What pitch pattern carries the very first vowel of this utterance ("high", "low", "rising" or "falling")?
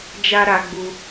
high